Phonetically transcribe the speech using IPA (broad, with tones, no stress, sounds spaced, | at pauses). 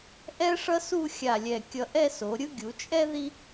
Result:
ʔ ɛ˥ ʂ ʌ˥ s u˥˧ xʲ a˧˩ lʲ ɛ˧˩ kʲ ʌ˧ ʔ ɛ˥˧ s o˩˧ ɾʲ ɯ˥ ɡʲ u˩˧ t͡ʃʼ ɛ˥ ð i˥